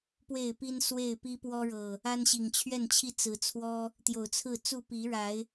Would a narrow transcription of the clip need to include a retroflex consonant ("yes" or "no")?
yes